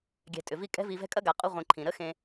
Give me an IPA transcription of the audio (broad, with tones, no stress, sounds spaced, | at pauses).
ɡʲ ɛ̤˨ tʼ ʏ˩ v i˦ kʼ ɛ̤˦ v i˨ v ɛ̤˦ kʼ ɐ˥ ɡ a˨ qʼ u˦ ʁʷ ĩ˨ ǃʰ ĩ˩ ɾ ə˥ x ẽ˨